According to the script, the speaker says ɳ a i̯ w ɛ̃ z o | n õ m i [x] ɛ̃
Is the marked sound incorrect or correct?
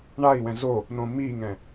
incorrect